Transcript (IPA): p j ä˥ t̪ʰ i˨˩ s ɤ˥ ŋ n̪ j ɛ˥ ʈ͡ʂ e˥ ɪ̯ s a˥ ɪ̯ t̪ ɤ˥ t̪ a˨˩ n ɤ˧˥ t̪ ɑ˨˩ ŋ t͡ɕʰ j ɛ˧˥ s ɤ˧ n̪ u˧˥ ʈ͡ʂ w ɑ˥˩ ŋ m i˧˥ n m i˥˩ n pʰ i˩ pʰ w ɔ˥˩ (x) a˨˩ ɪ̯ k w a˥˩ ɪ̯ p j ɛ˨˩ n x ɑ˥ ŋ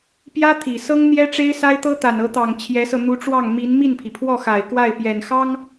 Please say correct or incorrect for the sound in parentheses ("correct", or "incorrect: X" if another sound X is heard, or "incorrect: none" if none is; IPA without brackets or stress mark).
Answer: correct